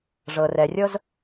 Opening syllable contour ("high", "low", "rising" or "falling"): low